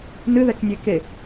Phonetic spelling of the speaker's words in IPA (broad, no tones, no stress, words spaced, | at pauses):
nɨðɛknʲe ke